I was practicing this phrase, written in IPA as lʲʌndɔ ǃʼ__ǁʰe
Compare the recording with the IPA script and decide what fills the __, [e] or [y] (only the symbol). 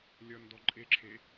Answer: e